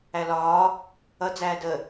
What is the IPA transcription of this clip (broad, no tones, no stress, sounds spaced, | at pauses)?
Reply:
æ l ɒː | ʌ d͡z æː d ə